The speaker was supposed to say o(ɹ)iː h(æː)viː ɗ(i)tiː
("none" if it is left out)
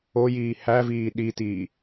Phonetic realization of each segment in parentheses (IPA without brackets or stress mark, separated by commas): j, æ, i